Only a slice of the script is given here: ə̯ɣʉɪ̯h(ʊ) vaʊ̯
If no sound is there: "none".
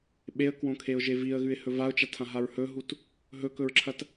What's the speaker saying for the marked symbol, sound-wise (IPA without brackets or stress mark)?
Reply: ɵ